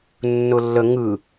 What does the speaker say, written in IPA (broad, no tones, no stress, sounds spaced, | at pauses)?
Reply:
nː ʊ lː ə ŋ ɯ